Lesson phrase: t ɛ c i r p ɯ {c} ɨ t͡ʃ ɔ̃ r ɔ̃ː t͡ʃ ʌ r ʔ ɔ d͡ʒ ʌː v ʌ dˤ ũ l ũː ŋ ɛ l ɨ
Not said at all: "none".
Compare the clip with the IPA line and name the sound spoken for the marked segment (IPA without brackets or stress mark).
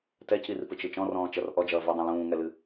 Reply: t͡ʃ